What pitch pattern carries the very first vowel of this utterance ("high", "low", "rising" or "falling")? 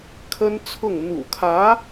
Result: high